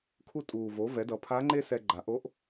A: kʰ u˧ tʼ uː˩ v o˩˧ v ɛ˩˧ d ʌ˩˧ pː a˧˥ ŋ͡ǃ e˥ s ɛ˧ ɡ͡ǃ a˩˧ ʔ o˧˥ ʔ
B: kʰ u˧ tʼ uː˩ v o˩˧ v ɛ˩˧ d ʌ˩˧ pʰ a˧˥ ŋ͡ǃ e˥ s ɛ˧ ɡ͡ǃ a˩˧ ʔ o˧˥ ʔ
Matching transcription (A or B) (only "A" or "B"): B